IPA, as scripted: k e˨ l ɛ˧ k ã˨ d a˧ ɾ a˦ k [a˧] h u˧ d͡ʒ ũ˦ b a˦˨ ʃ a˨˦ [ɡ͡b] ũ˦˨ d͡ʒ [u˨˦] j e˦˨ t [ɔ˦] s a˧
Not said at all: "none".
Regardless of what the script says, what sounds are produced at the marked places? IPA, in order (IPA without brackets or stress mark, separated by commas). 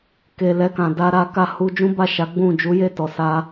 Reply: a˦˨, ɡ͡b, u˨˦, ɔ˨